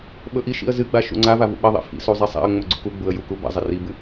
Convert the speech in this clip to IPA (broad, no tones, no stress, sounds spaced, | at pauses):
ɓ ɵ ʔ i ʃ ḭ ə̯ z ɨ ɡ͡b a ʃ ṵ ŋ͡ǀ a v a v ṵ ɓ ɐ ðˤ ḭ f ḭ s u zˤ i sˤ a̰ ə̯ ŋ͡m ɵ ɡ͡ǀ ṵ k u ɡ͡b u ə̯ j u k u b a̰ zˤ ɐ r i b ɨ